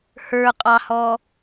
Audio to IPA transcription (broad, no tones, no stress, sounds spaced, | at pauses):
h ə˞ qʼ ɑ h ɔ